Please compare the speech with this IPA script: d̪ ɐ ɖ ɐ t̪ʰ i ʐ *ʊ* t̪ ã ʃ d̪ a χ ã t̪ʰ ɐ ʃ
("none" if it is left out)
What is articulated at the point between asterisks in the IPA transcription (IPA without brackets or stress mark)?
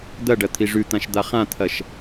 ʉ